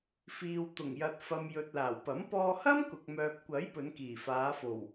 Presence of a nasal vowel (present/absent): absent